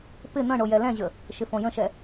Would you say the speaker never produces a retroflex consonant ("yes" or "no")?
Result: no